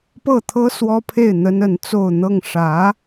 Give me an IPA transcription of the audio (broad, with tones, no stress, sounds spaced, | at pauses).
p ɤ˥˩ t̪ʰ ɤ˥ s w ɔ˥ pʰ e˥˩ ɪ̯ n̪ ə˥ n ə˧˥ n t͡s o˥˧ ʊ̯ n̪ ɤ˥˩ ŋ ʂ ä˧˥